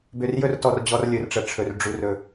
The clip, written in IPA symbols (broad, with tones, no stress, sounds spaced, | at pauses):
b ø˨ r j ɵ˦ r t ɔ˨ r d͡ʑ ɔ˦ r lʲ ɵ˨ r ʈ͡ʂ ə˨ ʈ͡ʂʰ ɵ˨ r ɖ͡ʐ u˨ r ɵ˨